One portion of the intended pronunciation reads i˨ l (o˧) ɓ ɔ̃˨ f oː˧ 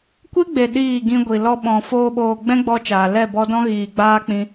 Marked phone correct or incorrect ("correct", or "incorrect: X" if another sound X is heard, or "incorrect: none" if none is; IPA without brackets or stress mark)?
incorrect: ɔ˧